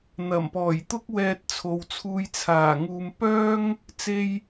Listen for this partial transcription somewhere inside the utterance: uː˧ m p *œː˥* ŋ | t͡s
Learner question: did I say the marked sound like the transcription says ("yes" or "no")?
yes